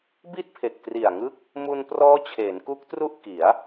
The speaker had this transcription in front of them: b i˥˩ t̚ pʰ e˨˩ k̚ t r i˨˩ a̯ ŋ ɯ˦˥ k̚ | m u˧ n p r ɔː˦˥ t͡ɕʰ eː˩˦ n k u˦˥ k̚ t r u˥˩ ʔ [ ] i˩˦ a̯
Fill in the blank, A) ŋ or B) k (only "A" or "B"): B